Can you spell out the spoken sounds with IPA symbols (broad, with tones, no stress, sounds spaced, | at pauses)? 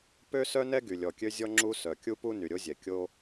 p ø˥ s œ˥ n ɛ˥ ɡ y˩ lʲ ɔ˩ kʲ ø˥ zʲ ɔ˥ ŋ͡ǁ u˥ s œ˩ kʲ u˥ p u˥ n y˩ ɾʲ o˥ zʲ ɛ˩ kʲ o˥